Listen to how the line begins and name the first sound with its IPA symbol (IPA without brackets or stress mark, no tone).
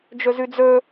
d͡ʒ